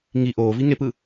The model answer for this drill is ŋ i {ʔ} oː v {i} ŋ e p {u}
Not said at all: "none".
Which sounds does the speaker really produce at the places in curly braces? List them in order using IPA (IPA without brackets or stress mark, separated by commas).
ʔ, i, ɯ